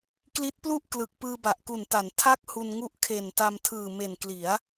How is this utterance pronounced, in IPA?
k l i˦˥ t̚ p l u˥˩ ʔ k l ɯ˨˩ k̚ p ɯː˧ b a˨˩ ʔ k u˨˩ n t a˩˦ n tʰ a˥˩ k̚ h u˧ n ŋ u˦˥ ʔ kʰ e˨˩ n t a˧ m tʰ ɯː˨˩ m e˨˩ n k l i˩˦ a̯

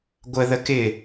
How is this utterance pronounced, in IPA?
ɡʷ ə ð ə k ɪ

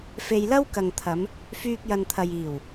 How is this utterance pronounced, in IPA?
f e˨ j l ɐ˥ w k ɐ˨ ŋ t̪ʰ ɐ˨˧ m | f yː˧ k̚ j ɐ˨ n t̪ʰ ɐ˨ j iː˨˩ w

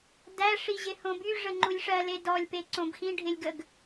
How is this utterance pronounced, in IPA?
d æ ʂ i ʑ ɪ h õ b y ʐ ə ŋ͡ǃ u lʲ ʂ ɜ l e d ɔ lʲ p e ǀ õ b x ĩ ɖʱ ɪ lʲ ɡ ə ɡ

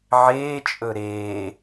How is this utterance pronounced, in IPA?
ʕ eː t͡ʃʼ ɵ ɾ eː

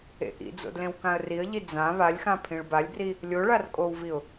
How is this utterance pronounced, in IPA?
ḛ ʔ ḭ d͡z o̰ d l ẽ w k ã ə̯ r i ə̯ ʎ i d͡z ã β a lʲ x ã pʰ ĩ ɭ b a lʲ b r i | lʲ o ɭ a r kʼ o w v i ʊ̯

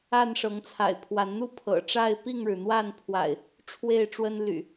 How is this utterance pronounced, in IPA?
a˥˨ n ʂ ɤ˨˦ ŋ t͡sʰ a̰˨˩ ɪ̯ pʰ w a˨˦ n n̪ u˥˨ pʰ ɤ̰˨˩ ʈ͡ʂ a˥˨ ɪ̯ p i˥˨ ŋ ɻ ɻ̩˩ n̪ w a˥˨ n pʰ w a̰˨˩ ɪ̯ | ʈ͡ʂʰ w e˥˨ ɪ̯ ʈ͡ʂ w ə˦ n l y̰˨˩

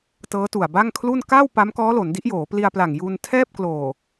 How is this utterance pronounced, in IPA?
t ɤː˦˥ t u˨˩ a̯ b a˥˩ ŋ kʰ l u˥˩ n k a˥˩ w p a˦˥ m k ɔː˦˥ l o˩˦ n d i˦˥ ʔ j oː˩˦ p l i˧ a̯ p l a˨˩ ŋ j uː˧ n tʰ ɛː˥˩ p̚ k l oː˨˩

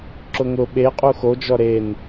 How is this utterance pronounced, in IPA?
ǁ ʊ ŋ ʊ ɓ e qʼ u x o d͡ʒ ɔ ɾ e n

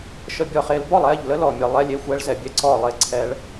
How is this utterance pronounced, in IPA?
ʃ ə˥˧ bʲ ɔ˥˧ χ e˦˥ l b ɔ˥˧ lˠ ɛ˥˧ ʎ l ə˦˥ l ɔ˥˧ mʲ ə˦˥ lˠ ɛ˦˥ lʲ e˦˥ xʷ ɛ˦˥ ɭ z ɛ˦˥ bʲ ɛ˦˥ ǀ ɔ˥˧ lˠ e˥˧ ǀʰ ɛ˦˥ ɭ

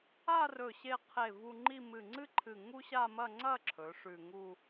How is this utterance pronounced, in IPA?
a˥˧ r ɵ˧˩ ɕ e˧ qʰ e˧˩ v u˧ ŋ͡ǃ i˥˧ m ɨ˧˩ ŋ͡ǀ ɨ˥ ǃʰ ɨ˧˩ ŋ u˥ ɕ a˥˧ m ɐ˥˧ ŋ͡ǀ ɐ˥˧ ǁʰ ɵ˩˧ ʂ ʉ˧˩ ŋ u˥˧

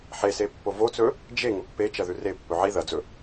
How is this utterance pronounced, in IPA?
ħ e s e pː o v o t͡s ɵ | d͡ʒ e ŋ ɵ pː e t͡ʃ ɐ ð ʉ r e pː ɵ ʕ i ð ɐ d͡z ɵ

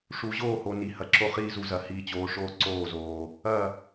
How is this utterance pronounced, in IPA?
ʂ u˨ ʑ oː˦˨ h o˨ n i˨ h ɐ˨ ǁ o˦ χ iː˦ z u˨ z ɐ˨ h iː˨ t͡ɕ oː˨ ʂ oː˦ ǀ oː˦˨ z oː˨ | ɐ˦˨

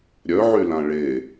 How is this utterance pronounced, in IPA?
ɾʲ œ ʕ y l ã ɭ e

